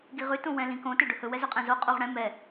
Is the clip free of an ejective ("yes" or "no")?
no